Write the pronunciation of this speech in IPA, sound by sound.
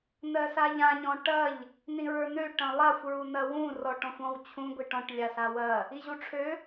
n̪ ɜ s a ʎ ã ɲ ɔ̃ ʈ ɐ ʎ | n̪ ĩ ɹ ə˞ n̪ ø ʈ ɐ̃ lˠ a xʷ ɹ u n̪ ɐ w ũ r ɔ ʈ ɔ̃ xʷ ɔ̃ w t͡ɕʰ ũ ɡʷ i ʈ ɔ̃ ʈ lʲ a s a w ɐ | i ʑ u ʈ͡ʂʰ ø

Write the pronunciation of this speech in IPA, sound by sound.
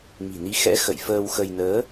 m i̤˨˩ n i˨˦ x ɛ̰˧˥ x ə̰˧˨ j f əː˧ w x ə˧ j n əː˨˦

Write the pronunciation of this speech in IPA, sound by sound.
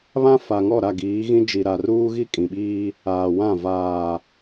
β ã˦ f a˨ ŋ ɔ˦˨ ɾ a˦˨ ɡ iː˨˦ ɣ ĩ˦ d͡ʒ i˨ ɾ a˨ r uː˦ ɣ i˦ kʼ ĩ˨ ɓ iː˦ | aː˨ w ã˦˨ v aː˨

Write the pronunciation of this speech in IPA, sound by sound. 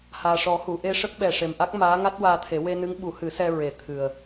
h aː˨˩ ʂ ɔ˨˩˦ h u˨˩˨ ʔ e˧ ʂ ə˦˥ k̚ ɓ ɛ˨˩ ʂ e˨˩ m ʔ a˦˥ k̚ m aː˧˥ ŋ a˦˥ t̚ w aː˧ t̪ʰ e˨˩˦ w e˧ n ɨ˧˥ ŋ ɓ u˨˩˦ h ɨ˨˩˦ s ɛ˧ ɹ e˨˩˦ t̪ʰ ɨ˨˩ ə̯

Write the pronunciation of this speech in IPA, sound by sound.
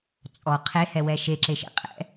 t͡sʼ ɔ qʰ e h ɛ w ɛ ʃ e ǁ e ʃ ḛ qʼ ɛ̰

